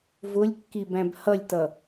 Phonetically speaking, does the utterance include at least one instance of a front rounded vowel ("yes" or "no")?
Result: no